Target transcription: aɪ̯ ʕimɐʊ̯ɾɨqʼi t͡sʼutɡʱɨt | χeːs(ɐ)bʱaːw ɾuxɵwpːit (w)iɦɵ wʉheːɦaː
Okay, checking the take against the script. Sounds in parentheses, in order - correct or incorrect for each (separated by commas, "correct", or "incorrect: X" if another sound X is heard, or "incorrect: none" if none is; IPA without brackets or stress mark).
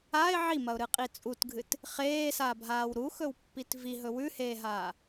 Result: incorrect: a, incorrect: v